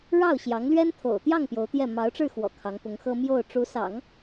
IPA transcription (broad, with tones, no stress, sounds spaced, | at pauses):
ɻ ɑ˥˩ ʊ̯ ɕ j ɑ˧˥ ŋ l ɥ ɛ˥ n t̪ʰ o̰˨˩ ʊ̯ t̪ j ɑ˥˩ ŋ p j o˧˥ ʊ̯ t̪ j ɛ˥˩ m ɑ˧˥ ʊ̯ ʈ͡ʂ ɻ̩˥˩ x w ɔ̰˨˩ kʰ ɑ˧˥ ŋ p ʊ˧˥ ŋ x ɤ˥ m j o˥˩ ʊ̯ ʈ͡ʂ u˧˥ s ɑ̰˨˩˦ ŋ